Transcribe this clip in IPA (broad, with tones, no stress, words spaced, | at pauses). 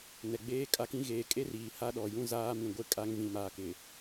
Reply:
nɛ˨ɡ͡beː˦kʼa˦kĩ˦ ɣeː˨kʼe˦r iː˨ha˦ɗɔ˨jũ˦ zaː˦mĩ˨ɡʷe˦ kʼa˦ŋ vĩ˨maː˨kɪ˨